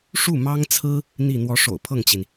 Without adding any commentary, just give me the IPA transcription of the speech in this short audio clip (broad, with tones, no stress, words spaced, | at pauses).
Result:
ʂu˥˩mɑ˥ŋt͡sʰɹ̩˥ | n̪i˥˩ n̪wɔ˧˥ʂo̰˨˩ʊ̯pʰɤ˥˩ŋt͡ɕi˩n